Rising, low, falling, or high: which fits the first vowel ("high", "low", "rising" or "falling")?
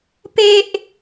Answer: high